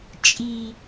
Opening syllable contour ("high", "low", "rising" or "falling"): high